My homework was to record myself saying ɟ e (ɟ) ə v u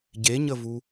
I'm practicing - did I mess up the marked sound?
yes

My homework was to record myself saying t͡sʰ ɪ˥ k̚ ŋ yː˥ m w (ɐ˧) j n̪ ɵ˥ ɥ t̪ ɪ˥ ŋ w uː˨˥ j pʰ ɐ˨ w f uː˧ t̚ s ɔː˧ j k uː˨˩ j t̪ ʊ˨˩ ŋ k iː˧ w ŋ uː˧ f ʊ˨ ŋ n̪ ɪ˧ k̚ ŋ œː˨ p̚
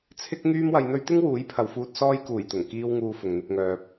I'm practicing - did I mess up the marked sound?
no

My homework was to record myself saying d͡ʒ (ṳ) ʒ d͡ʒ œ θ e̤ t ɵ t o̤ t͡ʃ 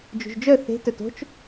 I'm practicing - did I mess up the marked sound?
no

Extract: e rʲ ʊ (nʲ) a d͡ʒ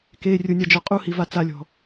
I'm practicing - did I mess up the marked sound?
no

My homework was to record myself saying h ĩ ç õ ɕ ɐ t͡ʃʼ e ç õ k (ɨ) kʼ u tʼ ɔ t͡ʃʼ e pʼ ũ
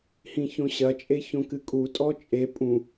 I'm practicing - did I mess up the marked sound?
no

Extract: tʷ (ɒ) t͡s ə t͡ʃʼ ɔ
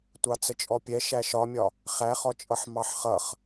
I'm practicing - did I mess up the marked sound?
yes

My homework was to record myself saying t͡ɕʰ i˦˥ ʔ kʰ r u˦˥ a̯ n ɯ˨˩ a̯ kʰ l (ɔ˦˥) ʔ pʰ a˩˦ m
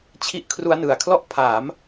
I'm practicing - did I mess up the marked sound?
no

